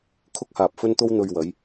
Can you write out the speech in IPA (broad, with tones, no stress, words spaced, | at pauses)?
kʰʊ˧k̚haː˨p̚ fɵ˧nt̪o˧w n̪ɵ˨ɥwɐ˨˧j